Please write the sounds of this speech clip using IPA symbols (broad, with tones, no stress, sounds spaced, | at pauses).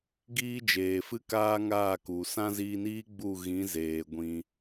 ɡ iː˦ d͡ʒ eː˨ f ɨ˦ k aː˦ ŋ aː˦˨ k u˨ s ã˦ z iː˧ n iː˦ ɡ͡b u˦˨ ɣ ĩ˨˦ z eː˨ ɡʷ ĩ˧